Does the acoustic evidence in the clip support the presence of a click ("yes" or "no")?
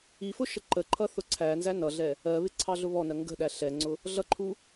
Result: yes